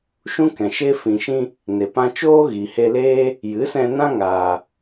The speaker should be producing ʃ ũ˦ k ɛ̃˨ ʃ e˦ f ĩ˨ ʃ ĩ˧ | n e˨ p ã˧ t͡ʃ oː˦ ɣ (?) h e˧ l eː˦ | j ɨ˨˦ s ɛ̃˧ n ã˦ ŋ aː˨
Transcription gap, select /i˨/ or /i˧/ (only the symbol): i˨